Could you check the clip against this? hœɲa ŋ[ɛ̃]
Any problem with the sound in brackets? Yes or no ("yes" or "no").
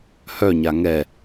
yes